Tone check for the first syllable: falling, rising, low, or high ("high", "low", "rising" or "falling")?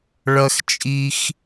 high